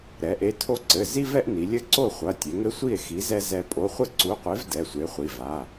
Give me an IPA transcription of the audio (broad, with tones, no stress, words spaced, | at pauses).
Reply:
ɾɛ˩˧ʔe˨˥tʰo˦ǀɘ˩˧˩ zi˦vɛ˦ʔ ni˩˧lʲɘ˦ǀo˥˨ χʷɐ˩˧˩ tʲe˩˧ŋɘ˦sʷi˥˨e̯ xi˨˥zɛ˦ zɛ˦ pʼo˩˧˩χʷɘ˥˨ǀu˨˥qʷe˨˥v dɛ˩˧˩sʷe˨˥χʷi˩˧˩ va˩˧˩